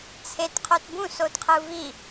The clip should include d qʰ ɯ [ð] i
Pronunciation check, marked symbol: incorrect: v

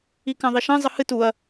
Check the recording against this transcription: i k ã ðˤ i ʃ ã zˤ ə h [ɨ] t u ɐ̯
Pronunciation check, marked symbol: correct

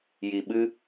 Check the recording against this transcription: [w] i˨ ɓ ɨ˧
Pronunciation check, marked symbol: incorrect: j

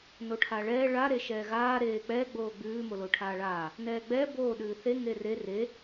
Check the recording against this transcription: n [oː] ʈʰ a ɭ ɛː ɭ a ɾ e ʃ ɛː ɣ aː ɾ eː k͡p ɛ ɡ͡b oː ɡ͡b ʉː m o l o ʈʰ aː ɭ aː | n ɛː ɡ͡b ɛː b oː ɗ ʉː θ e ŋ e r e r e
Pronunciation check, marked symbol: incorrect: o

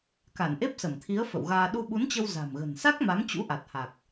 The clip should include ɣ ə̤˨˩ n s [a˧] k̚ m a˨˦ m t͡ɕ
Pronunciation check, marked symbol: incorrect: a˦˥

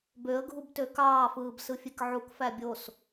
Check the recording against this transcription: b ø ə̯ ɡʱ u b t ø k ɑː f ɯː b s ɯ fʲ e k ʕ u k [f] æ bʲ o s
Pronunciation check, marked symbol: correct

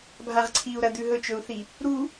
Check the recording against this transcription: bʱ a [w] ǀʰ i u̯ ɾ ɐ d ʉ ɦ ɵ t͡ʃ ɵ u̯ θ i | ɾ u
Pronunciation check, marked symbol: incorrect: ʁ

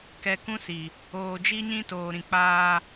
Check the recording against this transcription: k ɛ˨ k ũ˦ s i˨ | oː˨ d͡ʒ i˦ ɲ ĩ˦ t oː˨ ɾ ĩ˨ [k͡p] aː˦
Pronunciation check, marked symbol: correct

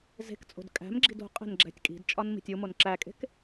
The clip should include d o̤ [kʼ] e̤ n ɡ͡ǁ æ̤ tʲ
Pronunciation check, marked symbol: incorrect: qʼ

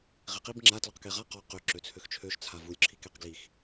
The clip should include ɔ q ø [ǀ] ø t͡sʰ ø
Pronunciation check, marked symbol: incorrect: ǁ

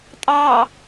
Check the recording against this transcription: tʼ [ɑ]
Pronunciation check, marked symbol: correct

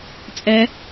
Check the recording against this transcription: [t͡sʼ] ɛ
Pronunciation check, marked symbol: correct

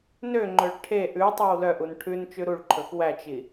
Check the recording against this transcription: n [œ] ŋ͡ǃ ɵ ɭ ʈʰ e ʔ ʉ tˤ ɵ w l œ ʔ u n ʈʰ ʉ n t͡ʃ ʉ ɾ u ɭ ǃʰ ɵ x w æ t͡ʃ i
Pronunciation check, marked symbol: incorrect: ø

